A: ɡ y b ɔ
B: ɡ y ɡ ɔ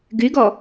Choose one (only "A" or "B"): B